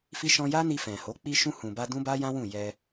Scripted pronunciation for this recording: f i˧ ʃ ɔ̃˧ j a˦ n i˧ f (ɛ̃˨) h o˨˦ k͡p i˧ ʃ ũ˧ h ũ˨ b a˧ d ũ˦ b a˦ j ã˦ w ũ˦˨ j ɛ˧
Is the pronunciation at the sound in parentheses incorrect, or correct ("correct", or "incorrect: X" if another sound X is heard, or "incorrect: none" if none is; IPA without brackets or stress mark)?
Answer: correct